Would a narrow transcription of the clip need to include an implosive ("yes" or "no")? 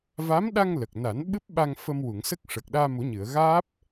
yes